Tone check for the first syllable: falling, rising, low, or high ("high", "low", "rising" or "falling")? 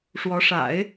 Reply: rising